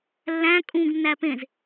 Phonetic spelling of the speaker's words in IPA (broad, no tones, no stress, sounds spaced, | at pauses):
lː æ̃ kʼ ũ ɡ nː æ p ẽ z